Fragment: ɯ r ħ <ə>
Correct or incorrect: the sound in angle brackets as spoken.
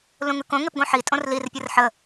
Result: correct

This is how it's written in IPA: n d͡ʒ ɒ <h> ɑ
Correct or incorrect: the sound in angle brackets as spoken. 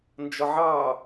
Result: incorrect: ʕ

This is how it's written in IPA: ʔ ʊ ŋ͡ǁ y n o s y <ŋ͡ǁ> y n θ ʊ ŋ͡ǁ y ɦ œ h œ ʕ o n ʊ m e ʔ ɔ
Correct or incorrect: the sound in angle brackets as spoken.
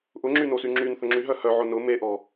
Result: correct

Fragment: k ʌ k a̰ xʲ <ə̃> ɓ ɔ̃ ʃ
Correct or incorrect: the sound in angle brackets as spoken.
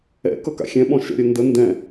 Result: incorrect: ɛ̃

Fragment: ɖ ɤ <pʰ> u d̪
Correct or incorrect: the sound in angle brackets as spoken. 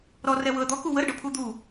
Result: correct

